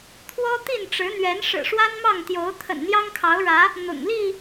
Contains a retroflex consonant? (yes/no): yes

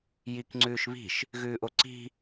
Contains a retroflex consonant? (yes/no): no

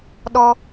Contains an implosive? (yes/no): yes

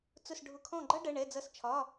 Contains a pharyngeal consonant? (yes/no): no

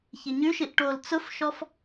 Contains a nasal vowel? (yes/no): no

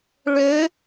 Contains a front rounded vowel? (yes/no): yes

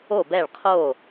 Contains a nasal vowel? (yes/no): no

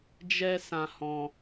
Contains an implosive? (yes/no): no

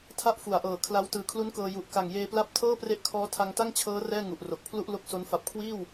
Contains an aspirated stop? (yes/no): yes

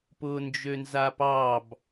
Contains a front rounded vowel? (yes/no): yes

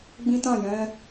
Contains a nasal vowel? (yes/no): yes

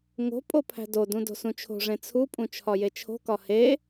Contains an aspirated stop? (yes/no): yes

